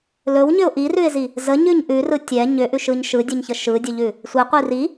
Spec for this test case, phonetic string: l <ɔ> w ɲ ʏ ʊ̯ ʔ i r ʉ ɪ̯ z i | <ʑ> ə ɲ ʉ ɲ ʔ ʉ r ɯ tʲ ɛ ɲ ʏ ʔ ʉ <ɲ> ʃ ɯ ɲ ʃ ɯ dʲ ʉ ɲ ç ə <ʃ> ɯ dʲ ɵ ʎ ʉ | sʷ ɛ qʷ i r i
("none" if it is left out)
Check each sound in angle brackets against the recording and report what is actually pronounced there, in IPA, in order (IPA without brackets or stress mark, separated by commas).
ɵ, z, none, ʃ